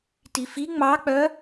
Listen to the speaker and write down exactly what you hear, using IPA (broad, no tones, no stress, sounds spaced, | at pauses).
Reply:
t i f i ŋ͡m ɑ k͡p œ